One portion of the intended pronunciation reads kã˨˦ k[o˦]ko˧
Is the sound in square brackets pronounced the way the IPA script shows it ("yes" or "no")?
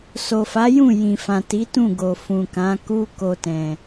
no